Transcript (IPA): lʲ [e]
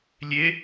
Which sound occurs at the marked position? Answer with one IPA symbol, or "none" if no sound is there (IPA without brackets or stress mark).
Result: e